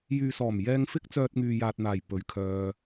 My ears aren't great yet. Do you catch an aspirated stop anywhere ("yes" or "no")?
yes